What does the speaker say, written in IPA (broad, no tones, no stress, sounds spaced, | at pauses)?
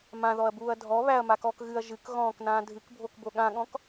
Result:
m ã ð ɔ ɐ̯ b uː ɐ̯ dʱ ɔ β æ ɐ̯ m a k ɔː k ɣ ɨ ɐ̯ ʒ ɨ k ɣ ɔ̃ː k n ãː dʱ ɨ k bʱ o k b o ɠ ã ɠ ɔ̃ k